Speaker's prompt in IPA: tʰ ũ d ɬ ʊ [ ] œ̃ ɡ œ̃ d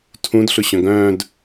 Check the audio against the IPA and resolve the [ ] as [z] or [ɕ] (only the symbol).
ɕ